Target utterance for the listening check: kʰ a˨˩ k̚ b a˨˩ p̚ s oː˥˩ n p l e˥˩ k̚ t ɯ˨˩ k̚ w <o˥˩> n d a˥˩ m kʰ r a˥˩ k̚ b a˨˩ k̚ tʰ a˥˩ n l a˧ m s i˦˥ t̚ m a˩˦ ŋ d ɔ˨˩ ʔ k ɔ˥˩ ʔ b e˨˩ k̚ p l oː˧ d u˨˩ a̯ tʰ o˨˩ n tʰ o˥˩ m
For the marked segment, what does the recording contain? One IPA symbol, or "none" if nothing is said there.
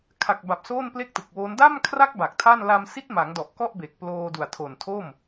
o˦˥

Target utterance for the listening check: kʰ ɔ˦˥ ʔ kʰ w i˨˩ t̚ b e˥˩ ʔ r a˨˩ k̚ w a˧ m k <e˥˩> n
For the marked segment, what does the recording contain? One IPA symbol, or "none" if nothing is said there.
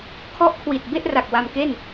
e˥˩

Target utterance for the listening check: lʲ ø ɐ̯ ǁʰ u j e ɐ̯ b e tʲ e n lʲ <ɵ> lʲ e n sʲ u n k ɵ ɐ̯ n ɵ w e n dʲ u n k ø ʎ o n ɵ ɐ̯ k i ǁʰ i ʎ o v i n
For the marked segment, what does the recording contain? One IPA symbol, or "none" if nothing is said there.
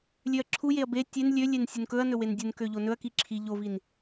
ø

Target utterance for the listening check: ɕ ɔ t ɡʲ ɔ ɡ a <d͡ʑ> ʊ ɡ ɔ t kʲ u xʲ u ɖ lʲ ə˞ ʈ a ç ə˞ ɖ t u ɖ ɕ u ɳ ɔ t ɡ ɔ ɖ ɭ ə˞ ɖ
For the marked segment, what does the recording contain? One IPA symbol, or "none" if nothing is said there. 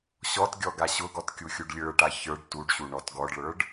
ɕ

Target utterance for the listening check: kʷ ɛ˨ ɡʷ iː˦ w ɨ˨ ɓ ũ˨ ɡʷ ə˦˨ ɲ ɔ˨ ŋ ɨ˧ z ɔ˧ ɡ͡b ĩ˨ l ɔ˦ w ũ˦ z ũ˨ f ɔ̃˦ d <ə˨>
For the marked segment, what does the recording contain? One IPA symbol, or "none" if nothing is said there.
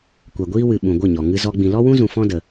ə˨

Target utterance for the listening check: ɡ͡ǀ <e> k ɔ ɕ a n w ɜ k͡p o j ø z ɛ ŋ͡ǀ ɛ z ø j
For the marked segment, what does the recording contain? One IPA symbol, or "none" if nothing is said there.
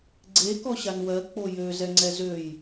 e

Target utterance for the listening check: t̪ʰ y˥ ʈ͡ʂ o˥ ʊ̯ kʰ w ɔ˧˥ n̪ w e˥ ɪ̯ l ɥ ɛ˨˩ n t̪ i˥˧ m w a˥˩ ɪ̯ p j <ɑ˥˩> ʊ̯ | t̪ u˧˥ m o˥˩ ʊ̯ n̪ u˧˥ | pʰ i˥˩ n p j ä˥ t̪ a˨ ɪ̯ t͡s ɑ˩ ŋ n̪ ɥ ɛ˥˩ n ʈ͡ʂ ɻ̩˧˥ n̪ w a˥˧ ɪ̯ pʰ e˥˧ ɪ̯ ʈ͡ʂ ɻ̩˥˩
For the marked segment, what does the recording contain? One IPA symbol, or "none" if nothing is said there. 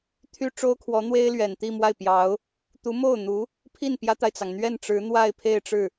ɑ˧˥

